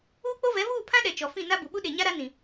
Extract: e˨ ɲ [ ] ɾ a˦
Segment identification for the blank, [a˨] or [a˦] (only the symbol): a˦